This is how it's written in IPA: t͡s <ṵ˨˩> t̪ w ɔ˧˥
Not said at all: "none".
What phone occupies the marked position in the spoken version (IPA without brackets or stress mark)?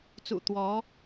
ṵ˨˩